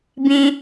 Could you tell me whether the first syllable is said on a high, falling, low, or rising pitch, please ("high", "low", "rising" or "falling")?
low